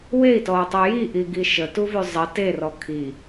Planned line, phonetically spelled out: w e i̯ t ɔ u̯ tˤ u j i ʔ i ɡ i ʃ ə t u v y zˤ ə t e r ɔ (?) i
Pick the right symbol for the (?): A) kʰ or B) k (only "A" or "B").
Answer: A